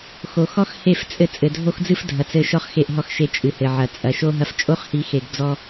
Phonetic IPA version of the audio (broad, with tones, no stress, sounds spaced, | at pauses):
x o˨ x ɔ˦ x h e˦˨ f t͡sʼ ɘ˦ t͡sʼ ɘ˨ dʱ o˦ x d͡z ɨ˦ f dʱ ɐ˨ t͡s ɘ˦˨ ʃ ɔ˦ χ x e˦˨ ʔ ɦ ɔ˦ x ʃ e˦˨ t͡ʃʼ ɨ˨ h ɘ˨ ʕ ɐ˨ t͡sʼ ɐ˨ ʃ o˦ ɦ ɐ˦ f t͡ʃʼ o˦ χ h i˨˦ x e˨ ɡ d͡z ɔ˦